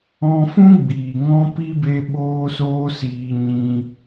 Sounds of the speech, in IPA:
ɔ̃˧ f ũ˦ ɡ͡b iː˨ ŋ ɔ̃˦ p i˦ b e˦ ɓ oː˦ s oː˦ s iː˧ ɲ ĩ˧

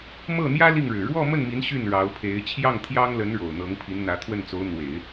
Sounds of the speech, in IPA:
m ɤ˥˩ n̪ j ä˥ l i˥˩ ŋ ɻ ɻ̩˨˩ ɻ w ɔ˥˧ m ə˥˩ n m i˧˥ n ɕ y˥˩ n ɻ ɑ˧˥ ʊ̯ pʰ e˧˥ ɪ̯ t͡ɕʰ j ɑ˥˩ ŋ t̪ʰ j ɑ˥ ŋ l ə˧˥ n ɻ o˨˩ ʊ̯ n̪ ɤ˧˥ ŋ pʰ i˧˥ n n̪ ä˧˥ t̪ʰ w ə˥˩ n t͡s o˧˥ ʊ̯ n̪ w e˨˩˦ ɪ̯

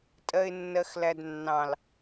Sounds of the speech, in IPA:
tʼ ɜ ɪ̯ nː ɜ x l æ d nː ɑ̃ l

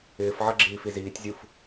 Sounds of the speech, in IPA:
ɪː f ʕ ʌ ɡ͡ǁ iː f i z iː tʲ zʲ u f

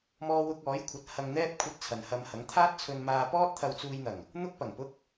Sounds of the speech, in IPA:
m ɔː˥ w ʊ˥ k̚ ɔː˨˥ j kʷʰ ɐ˨˥ t̚ h ɐ˧ ŋ n̪ ɛː˥ p̚ kʷʰ ɐ˧ t̚ t͡sʰ ɐ˨ n h ɐ˧ m h ɐ˨˥ ŋ t̪ʰ aː˥ t̚ t͡sʰ ɵ˧ n m aː˧ p ɔː˥ t̚ t̪ʰ ɐ˧ w t͡s uː˧ j n̪ ɐ˨˩ ŋ | n̪ ʊ˥ k̚ p ɐ˨˩ ŋ p ʊ˥ k̚

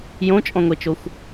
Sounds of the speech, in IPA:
j õ t͡ʃʼ ɔ̃ ŋʷ e t͡ʃ o xʷ

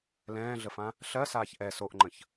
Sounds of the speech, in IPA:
l ɛ̃ː ɮ ə f ã | ɬ ɜ s aː ç ʔ ɛ s o ʔ ŋ͡ǃ ə̃ ç

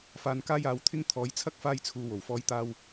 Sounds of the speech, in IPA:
f aː˧ n k aː˥ j aː˨˥ w t̪ʰ ɪ˥ ŋ t̪ʰ ɔː˨˥ j t͡sʰ ɐ˥ k̚ f aː˧ j t͡sʰ uː˨ w o˨˩ w f ɔː˧ j t̪ aː˧ w

